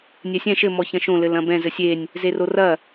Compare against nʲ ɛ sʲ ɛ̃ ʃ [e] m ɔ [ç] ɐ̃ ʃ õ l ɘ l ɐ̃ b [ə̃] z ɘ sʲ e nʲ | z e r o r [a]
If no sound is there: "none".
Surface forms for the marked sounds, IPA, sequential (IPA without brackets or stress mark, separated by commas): ɘ, ç, ɛ̃, ɐ